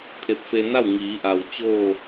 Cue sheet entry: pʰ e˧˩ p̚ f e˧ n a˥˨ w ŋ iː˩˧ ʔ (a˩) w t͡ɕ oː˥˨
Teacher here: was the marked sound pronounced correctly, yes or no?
yes